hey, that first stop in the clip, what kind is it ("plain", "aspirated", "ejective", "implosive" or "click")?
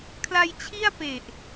aspirated